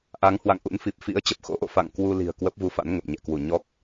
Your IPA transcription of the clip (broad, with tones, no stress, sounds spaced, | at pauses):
ʔ a˨˦ ŋ h w a̰˧˨ ŋ ʔ ṵ˧˥ n f i˨˩ p̚ f ḭ˧˥ ə̯ t͡ɕ ə˨˩ p̚ x o̰˧˥ ʔ o̰˧˨ f a̰˧˨ ŋ k w u˧ l i̤˨˩ ə̯ k w ə˦˥ p̚ v u˧ f a̰˧˥ n ŋ ə˨˩ p̚ ɲ ɛ̰˧˨ k w u˧˩ ɲ ɔ˦˥ k̚